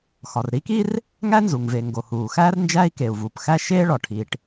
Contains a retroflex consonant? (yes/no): yes